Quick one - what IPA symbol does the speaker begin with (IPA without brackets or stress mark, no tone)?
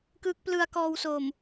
k